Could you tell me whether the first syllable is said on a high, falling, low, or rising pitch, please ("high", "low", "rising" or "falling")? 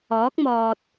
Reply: rising